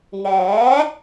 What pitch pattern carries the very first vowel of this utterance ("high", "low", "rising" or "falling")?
rising